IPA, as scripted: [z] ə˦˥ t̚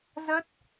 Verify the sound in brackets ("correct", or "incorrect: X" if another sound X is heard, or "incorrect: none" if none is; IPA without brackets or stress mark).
correct